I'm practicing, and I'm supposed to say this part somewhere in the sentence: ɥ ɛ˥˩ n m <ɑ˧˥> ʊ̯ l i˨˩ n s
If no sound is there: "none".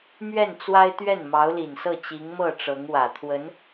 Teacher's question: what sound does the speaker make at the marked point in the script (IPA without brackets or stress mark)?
ɑ˧˥